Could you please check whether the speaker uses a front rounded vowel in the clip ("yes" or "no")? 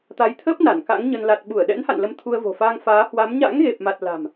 no